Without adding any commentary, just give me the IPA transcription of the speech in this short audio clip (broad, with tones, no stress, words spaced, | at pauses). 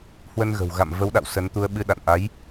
hwə˧nɣə̤˨˩wɣa̰˧˨m və˨˦wɗa̰˧˨w sə˨˦nt̪u˧ə̯ɓɨ˧ ɗa̰˧˨nʔa˨˦j